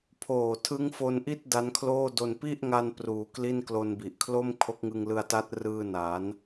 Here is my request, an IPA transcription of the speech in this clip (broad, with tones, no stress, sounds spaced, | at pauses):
pʰ oː˨˩ tʰ ɯ˦˥ ŋ f o˧ n ʔ i˥˩ t̚ d a˦˥ n kʰ l oː˥˩ d o˧ n p i˥˩ ʔ ŋ a˧ n p r uː˨˩ k l i˥˩ n k l o˧ n b i˨˩ ʔ kʰ l o˥˩ m kʰ o˦˥ k̚ ŋ ɯ˧ ŋ l ɯ˧ a̯ t a˦˥ t̚ r ɯː˧ n a˩˦ n